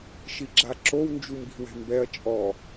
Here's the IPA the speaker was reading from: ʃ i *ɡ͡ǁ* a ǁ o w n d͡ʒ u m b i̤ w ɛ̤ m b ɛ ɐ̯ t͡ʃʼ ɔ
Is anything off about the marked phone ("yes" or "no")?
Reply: no